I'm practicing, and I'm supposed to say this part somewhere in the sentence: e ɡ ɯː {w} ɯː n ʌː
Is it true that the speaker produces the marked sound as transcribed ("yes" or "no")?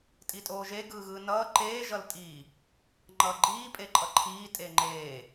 no